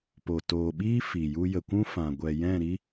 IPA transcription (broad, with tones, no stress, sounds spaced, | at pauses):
p o˨ t oː˨ ɓ iː˦ f i˨ j u˧ j ə˨ kʷ ũ˦ f ã˨ ɡʷ ɛ˨ j ɛ̃˦˨ ɾ i˦